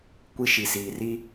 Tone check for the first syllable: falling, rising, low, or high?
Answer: high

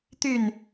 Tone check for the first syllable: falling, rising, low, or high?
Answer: falling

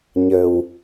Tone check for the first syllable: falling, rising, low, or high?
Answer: low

